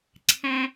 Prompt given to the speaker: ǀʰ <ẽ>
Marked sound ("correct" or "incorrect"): incorrect